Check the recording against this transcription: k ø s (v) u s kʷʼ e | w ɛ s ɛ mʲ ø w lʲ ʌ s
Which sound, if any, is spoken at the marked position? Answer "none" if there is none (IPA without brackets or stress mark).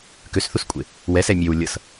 θ